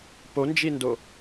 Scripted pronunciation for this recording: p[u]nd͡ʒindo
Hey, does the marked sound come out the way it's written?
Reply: no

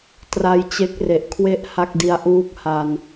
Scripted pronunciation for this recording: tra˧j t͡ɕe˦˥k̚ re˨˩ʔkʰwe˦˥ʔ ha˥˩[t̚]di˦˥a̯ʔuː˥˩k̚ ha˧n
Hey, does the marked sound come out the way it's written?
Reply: no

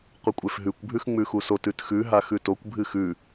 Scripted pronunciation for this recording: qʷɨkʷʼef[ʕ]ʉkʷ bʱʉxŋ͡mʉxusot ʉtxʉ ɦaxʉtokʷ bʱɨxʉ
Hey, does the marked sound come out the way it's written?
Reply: no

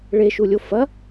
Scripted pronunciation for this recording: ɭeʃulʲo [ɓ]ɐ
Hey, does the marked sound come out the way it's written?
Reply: no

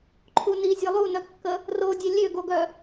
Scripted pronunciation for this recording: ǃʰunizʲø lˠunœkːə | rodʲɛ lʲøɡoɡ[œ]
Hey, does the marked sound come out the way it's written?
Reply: yes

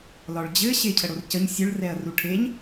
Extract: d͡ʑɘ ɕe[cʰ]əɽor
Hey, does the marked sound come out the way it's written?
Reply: yes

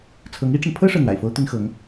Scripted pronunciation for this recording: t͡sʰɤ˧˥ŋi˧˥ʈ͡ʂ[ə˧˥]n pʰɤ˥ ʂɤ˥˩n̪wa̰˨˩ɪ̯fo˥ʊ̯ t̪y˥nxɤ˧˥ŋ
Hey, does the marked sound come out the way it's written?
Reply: no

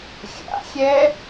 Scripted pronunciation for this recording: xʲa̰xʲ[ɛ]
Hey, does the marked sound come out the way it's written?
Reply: yes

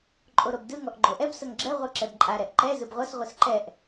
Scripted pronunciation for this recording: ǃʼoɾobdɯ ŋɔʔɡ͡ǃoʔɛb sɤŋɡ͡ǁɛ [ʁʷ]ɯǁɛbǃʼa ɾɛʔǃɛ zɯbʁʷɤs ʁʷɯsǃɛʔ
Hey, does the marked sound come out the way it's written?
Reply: yes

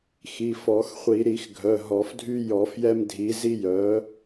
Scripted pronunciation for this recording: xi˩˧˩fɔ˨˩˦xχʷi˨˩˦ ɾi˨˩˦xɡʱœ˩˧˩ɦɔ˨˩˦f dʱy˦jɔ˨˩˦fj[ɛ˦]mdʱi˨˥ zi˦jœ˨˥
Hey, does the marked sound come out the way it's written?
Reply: yes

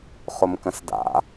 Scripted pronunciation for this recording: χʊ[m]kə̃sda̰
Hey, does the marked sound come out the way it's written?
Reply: yes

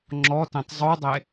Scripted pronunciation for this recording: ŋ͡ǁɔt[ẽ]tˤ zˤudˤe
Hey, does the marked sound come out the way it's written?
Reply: yes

